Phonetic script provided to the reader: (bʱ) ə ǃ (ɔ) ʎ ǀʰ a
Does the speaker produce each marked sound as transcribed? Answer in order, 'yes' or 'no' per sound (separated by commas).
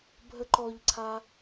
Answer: yes, yes